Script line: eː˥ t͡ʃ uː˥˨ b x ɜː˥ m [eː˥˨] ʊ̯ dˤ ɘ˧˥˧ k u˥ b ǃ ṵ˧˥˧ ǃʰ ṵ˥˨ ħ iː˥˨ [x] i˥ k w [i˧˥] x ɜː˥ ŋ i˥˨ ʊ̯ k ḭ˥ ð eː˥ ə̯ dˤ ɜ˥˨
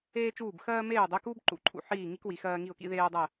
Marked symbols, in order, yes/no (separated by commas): yes, no, yes